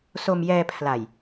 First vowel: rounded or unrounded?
rounded